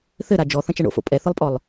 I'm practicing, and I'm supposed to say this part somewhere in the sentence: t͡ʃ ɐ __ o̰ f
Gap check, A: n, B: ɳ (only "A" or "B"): B